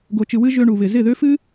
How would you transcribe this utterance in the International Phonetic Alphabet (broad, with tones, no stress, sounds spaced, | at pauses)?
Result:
ɡ o˨ t͡ʃ ɨ˨ w ɨ˧ ʒ ø˧ ɳ u˨ β ɪ˨ z ɪ˦˨ ð ø˦ f ɨ˦